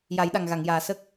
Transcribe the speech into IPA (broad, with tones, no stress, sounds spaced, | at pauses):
j a˨˩˦ j ɗ a˨˩ ŋ ɣ a˨˩˨ ŋ j aː˨˩ s ə˦˥ k̚